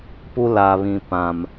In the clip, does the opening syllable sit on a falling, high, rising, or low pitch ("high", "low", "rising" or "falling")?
high